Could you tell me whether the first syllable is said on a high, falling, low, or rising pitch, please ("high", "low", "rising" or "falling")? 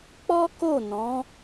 high